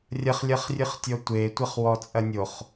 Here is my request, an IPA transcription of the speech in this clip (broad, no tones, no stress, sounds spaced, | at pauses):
rʲ ɐ χ lʲ ɐ χ rʲ ɨ χ tʲ ɔ tʷ e tʷ ɐ χ w ɔ t͡sʼ ɐ nʲ o χ